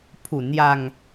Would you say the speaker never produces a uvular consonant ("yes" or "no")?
yes